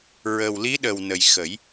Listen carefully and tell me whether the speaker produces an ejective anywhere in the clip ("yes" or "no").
no